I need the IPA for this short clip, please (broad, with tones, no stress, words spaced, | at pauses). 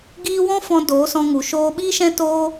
ɡiː˧ wɔ̃˦fɔ̃˧ doː˨˦sɔ̃˧ŋu˨ ʃoː˧ɓiː˦ʃɛ̃˦ toː˦